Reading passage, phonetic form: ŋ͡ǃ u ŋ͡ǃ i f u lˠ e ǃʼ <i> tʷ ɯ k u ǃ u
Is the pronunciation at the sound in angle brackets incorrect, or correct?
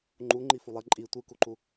correct